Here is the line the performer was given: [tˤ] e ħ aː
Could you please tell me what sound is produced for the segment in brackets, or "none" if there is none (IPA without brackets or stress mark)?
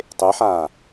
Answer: tˤ